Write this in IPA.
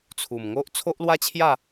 t͡sʰ u˨˩ m ŋ o˦ ʔ t͡sʰ o˦ ʔ l w a˦ t͡ɕʰ j a˥˧

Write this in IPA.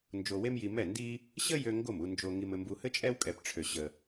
n d͡ʒ o˧ w e˥ m j i˧ m ɛ˥˩ n d i˥ | ɕ ə˥ j ø˧ ŋ ɡ o˥˩ m u˧ n d͡ʒ o˧ ŋ i˧ m ɘ˧ m b u˧ h ɘ˥ t͡ʃʼ ɛ˥ w kʼ ɛ˧ p ʈ͡ʂʰ ø˧ ɕ ə˧

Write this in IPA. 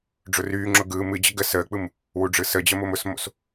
ɖ͡ʐ ʊ r yː ŋ͡ǁ ʊ ɡ ɯː m ɨ d͡ʑ ə ɡ ə s əː k͡p ɯ m | w u ɖ͡ʐ ɯ s ə d͡ʑ ə m ʊ m ʊ s m o̰ s

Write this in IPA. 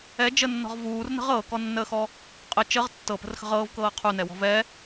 ɛ d͡ʒ ə nː ɔ̤ ʁ v uː r n ə̤ ʁ ɤː k ɔ nː əː x ɔ | qʼ ə t͡ʃ ə ʁ tː ɤ p ə̤ r x ə̤ ʁ ɤː v k ɤː qʰ u n ɛ w ɔ̤ v ɛ

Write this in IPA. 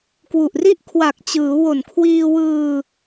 k w u˨˩ ʔ r i˥˩ ʔ kʰ w a˨˩ k̚ t͡ɕ ɯː˩˦ w o˨˩ n kʰ w iː˧ w ɯː˧

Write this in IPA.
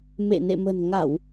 m ḛ˧˨ n ḛ˧˨ m ə̤˨˩ n ŋ a˧˩˨ w

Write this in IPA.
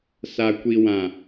s a˨ kʷ i˨ w ã˨

